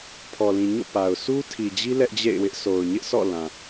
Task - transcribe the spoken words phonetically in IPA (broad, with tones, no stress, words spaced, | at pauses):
pʰɔ˨lĩ˨ɲo̰˦˨ pa˨ʊ̯ su˦tʰi˨d͡ʑi˦ lɛ˦ʔd͡ʑḛ˦˨ɪ̯wɪ˦ʔ so˨ʊ̯ɲɪ˦ʔ sʰɔ̰˦˨ lã˨